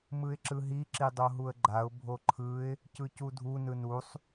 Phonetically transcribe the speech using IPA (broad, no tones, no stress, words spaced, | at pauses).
mɯɪ̯ǁɯɦi ǁidˤoɦuə̯ɡ͡ǃaʊ̯ bʱoǃʰɯɪ̯ | cɯcudʱu nɯnusˤ